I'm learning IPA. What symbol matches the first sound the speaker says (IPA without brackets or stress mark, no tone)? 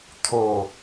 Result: t̪ʰ